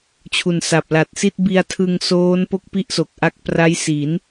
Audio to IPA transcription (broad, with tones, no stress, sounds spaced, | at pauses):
t͡ɕʰ u˨˩ n s a˨˩ p̚ l a˨˩ t̚ s i˥˩ t̚ b i˧ a̯ tʰ ɯ˧ ŋ s oː˦˥ n p o˥˩ k̚ p i˥˩ ʔ s o˨˩ k̚ ʔ a˦˥ k̚ p r a˦˥ j s i˩˦ n